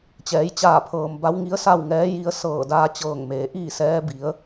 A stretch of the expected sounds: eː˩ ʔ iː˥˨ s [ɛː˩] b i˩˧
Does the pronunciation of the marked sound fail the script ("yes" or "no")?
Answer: yes